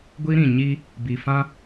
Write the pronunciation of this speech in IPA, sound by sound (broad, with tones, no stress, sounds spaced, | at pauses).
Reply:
ɡʷ i˦ ɾ ĩ˨ ɲ i˦ | b i˨ f ã˦